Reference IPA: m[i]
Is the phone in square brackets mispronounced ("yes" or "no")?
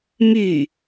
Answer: yes